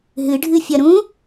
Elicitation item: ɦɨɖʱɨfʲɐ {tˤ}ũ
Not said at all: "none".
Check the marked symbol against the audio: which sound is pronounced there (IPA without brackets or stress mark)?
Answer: ɾ